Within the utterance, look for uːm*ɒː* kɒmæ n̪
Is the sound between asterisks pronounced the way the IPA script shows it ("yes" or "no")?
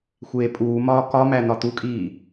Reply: yes